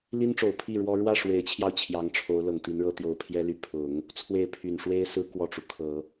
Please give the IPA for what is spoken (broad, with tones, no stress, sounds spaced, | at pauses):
l i˥ n ʈ͡ʂ o˨˩ ʊ̯ pʰ i˥˩ ɻ w ɔ˥ ɻ w ä˥˩ ʂ w e˧˥ ɪ̯ t͡ɕʰ j ɑ˧ ʊ̯ t͡ɕʰ j ɑ˧˥ ŋ ʈ͡ʂʰ o˧˥ ʊ̯ l ɤ˨˩ ŋ t̪ i˧˥ n ɻ ɤ˥ t̪ j o˧˥ ʊ̯ pʰ j ɛ˥ l y˧˥ pʰ ʊ˨˩˦ ŋ | t͡sʰ w e˥˩ ɪ̯ pʰ y˨˩ n ʂ w e˥ ɪ̯ s ɹ̩˥ k w ɔ˥˩ ʈ͡ʂ u˩ kʰ ɤ˨˩˦